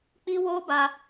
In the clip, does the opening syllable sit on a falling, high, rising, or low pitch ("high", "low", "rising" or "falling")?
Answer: high